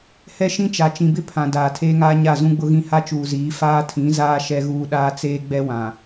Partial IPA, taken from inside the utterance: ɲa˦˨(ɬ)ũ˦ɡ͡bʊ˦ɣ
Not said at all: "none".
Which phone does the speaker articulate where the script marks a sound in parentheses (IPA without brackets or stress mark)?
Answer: z